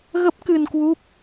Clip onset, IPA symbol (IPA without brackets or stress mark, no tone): ɣ